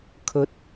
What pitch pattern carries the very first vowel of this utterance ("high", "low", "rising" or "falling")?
rising